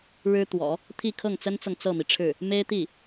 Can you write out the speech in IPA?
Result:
ɻɻ̩˥t̪wɔ̰˨˩˦ | t̪ʰi˥˧kʰɤ˥˩ŋt͡sə˥nt͡sɤ˨ŋ t͡sɤ˥˩mi˩ʈ͡ʂʰɻ̩˥˩ | me˥ɪ̯t̪i˥˩

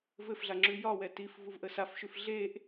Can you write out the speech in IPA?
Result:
vɘfɮa ŋ͡ǁʉjɒwɛ tif vuvʔəsafʃʉf ɮeʔ

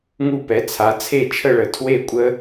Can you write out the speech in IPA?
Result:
ŋu˥˨pɛ˩˥ t͡sʰa˩˥ t͡sʰe˥˨t͡ʃʰə˥˨ɭə˩˧ tʰwe˥˨kʷʼə˦˥

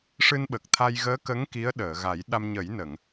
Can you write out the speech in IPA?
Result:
ʂɨ˧nɓə˨˩k̚t̪ʰa˧j ɣəː˧˥kə˧˥ŋ ki˧˥ə̯ɗəː˨˩˨ɣa˨˩˦j ɗa˧m ɲə˨˩˦jnə˨˩˨ŋ

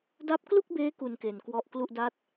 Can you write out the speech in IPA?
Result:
da˦˥p̚klu˥˩k̚beː˦˥ ku˧nke˨˩nkwɔ˦˥ʔ klu˥˩ʔ da˥˩t̚

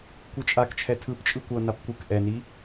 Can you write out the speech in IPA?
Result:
kʷɯt͡ʃʼakt͡ʃʰɛ tʰɯpt͡ʃʼɯ kʷʌnap kʷɯk ʔɛni

